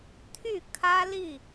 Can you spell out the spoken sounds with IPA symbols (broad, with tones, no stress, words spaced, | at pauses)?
t̪ʰy˥˨kʰä˦li˥˨